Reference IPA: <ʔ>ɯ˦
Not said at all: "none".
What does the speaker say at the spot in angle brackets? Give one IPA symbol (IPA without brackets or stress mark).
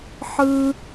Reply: ħ